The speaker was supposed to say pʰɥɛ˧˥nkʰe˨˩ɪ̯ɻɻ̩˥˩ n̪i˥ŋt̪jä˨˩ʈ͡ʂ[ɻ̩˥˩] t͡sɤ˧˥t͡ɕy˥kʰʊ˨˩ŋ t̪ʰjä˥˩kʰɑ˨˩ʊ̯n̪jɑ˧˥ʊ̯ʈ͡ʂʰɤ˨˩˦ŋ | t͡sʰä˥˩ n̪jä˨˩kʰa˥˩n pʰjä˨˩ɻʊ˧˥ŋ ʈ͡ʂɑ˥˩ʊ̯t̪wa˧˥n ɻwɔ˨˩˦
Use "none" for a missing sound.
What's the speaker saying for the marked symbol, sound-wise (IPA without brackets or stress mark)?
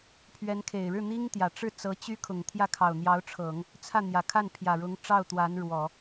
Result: ɻ̩˥˩